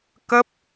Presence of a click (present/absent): absent